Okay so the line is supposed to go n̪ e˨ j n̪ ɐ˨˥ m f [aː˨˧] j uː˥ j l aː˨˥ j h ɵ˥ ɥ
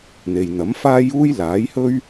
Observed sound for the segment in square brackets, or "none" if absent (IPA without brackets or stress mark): aː˥